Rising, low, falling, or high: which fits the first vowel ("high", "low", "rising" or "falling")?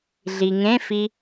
low